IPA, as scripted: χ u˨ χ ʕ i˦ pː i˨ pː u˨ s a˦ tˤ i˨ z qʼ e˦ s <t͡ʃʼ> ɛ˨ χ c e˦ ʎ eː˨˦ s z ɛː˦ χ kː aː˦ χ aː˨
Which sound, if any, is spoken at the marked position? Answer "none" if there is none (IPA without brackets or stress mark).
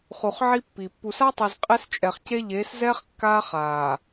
t͡ʃʼ